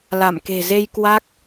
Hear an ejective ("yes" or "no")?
no